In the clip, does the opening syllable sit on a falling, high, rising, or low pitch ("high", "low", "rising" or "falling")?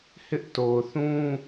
high